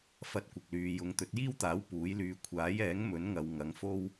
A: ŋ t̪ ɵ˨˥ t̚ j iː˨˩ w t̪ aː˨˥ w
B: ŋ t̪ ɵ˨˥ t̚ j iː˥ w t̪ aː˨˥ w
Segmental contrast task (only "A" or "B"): B